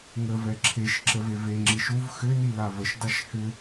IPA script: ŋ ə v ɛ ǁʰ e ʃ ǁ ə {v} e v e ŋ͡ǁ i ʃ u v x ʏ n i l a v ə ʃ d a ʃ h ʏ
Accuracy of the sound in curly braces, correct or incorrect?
correct